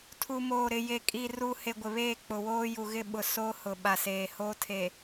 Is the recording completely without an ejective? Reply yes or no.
no